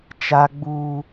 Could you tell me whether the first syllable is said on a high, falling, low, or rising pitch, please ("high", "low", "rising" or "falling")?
high